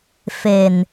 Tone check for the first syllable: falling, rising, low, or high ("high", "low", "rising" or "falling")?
low